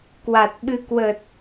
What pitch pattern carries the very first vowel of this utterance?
low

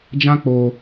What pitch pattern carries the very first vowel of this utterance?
high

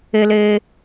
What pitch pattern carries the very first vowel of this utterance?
high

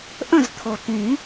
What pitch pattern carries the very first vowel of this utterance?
falling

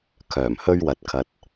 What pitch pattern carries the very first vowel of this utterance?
low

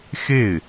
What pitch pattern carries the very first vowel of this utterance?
falling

